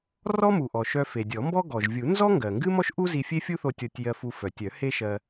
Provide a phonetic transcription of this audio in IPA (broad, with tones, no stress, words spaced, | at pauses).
rɔ˥mu˩ʔɔ˩ ʃœ˧fe˩ dʲɔ˨˩˦mbɔ˥ ɡɔ˩ʒvʲu˨˩˦ nzɔ˥ŋɡɜ˩ ŋɡɨ˥mɔ˥ʃʔu˥ zi˧fʲe˥fʲu˥θo˧ tʲɔ˧tʲjɜ˧fu˧ fœ˩tʲœ˨˩˦ he˥ʃɜ˧